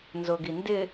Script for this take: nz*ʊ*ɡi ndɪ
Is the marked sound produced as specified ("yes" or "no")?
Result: yes